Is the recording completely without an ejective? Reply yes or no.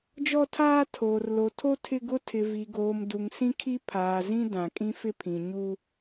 no